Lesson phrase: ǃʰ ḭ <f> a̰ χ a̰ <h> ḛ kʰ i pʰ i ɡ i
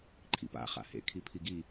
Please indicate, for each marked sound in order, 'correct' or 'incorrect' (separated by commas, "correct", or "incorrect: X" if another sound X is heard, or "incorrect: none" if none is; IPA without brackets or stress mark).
incorrect: p, correct